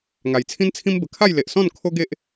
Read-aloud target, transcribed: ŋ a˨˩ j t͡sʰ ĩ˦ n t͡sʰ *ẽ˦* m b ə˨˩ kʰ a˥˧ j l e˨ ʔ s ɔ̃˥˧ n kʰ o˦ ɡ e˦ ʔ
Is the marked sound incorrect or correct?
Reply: incorrect